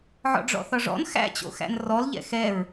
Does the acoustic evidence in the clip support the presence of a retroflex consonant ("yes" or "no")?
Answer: yes